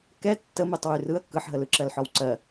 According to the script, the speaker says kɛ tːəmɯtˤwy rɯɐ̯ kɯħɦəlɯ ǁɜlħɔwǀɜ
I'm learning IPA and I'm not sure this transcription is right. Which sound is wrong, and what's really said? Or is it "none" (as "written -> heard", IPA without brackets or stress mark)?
none